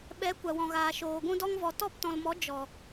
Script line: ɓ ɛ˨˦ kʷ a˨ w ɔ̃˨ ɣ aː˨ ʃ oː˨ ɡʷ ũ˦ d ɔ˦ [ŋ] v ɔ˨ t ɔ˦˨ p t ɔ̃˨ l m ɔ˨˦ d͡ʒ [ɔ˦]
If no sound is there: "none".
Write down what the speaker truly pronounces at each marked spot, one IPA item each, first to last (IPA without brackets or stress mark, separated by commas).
ŋ, ɔ˨